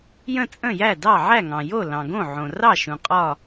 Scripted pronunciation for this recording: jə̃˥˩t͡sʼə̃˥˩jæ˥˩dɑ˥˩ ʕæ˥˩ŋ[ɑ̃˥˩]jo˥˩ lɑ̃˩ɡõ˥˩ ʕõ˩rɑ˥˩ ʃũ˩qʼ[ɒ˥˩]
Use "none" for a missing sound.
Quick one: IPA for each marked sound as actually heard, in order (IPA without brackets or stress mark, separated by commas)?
ɑ̃˩, ɒ˥˩